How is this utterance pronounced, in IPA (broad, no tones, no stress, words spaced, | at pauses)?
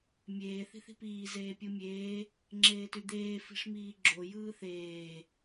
mʲeː θi̤θi̤piː zeːpʲɯmʲeː | ŋ͡ǁeːtyd̪eː fi̤ʂmiːɡ͡ǁo jɯːθeː